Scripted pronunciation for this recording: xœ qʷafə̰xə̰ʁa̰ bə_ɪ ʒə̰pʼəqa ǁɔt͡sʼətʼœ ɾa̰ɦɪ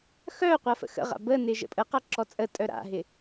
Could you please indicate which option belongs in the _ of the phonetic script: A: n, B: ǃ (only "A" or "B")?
A